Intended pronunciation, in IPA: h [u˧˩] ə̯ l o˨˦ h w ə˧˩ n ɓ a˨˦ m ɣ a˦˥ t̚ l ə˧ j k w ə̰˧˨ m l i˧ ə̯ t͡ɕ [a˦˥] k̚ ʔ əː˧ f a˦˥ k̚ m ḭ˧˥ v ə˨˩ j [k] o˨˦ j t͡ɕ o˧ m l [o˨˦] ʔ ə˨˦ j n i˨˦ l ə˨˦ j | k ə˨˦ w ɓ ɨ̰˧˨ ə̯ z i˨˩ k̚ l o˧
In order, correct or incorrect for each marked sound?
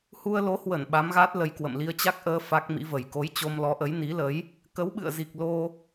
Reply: incorrect, correct, correct, incorrect

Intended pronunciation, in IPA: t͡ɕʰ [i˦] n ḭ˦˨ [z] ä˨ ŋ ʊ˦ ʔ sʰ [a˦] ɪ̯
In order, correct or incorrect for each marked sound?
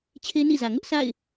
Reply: incorrect, correct, incorrect

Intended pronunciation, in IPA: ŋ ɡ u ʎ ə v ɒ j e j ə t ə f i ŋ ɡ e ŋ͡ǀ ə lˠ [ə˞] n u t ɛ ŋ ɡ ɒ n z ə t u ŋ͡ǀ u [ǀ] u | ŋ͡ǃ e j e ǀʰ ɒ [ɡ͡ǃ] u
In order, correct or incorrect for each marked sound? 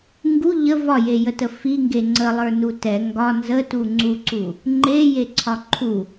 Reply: correct, correct, incorrect

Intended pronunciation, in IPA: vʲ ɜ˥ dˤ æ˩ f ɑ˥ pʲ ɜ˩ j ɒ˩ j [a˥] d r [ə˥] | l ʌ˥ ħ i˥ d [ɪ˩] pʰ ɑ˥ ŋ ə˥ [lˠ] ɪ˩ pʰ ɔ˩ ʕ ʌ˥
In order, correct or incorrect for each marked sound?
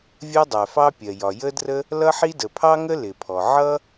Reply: incorrect, correct, incorrect, incorrect

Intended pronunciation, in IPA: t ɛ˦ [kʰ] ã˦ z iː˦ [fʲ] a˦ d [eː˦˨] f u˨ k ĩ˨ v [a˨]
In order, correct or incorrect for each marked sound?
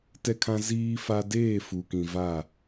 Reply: correct, incorrect, correct, incorrect

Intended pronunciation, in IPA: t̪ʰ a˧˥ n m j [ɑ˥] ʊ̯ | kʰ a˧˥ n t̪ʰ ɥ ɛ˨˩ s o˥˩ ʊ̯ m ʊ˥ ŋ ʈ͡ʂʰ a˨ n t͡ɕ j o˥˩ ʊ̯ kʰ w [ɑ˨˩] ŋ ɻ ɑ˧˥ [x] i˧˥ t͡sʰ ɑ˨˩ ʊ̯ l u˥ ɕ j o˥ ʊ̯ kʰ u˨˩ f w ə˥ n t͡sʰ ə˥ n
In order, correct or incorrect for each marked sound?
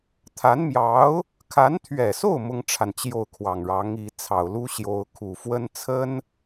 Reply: incorrect, correct, incorrect

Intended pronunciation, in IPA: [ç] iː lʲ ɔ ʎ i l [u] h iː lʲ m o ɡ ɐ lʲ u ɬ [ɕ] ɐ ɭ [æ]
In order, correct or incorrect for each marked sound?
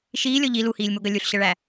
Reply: incorrect, correct, correct, correct

